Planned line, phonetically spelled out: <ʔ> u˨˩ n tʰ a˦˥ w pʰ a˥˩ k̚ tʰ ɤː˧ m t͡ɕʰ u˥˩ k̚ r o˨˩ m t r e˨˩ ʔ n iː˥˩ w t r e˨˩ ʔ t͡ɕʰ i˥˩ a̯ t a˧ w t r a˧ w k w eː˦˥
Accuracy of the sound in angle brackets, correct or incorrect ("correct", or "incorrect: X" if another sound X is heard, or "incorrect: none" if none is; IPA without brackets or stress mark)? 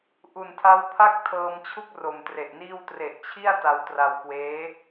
correct